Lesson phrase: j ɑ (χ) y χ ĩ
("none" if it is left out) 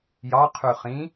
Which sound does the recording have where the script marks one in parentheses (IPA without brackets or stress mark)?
qʰ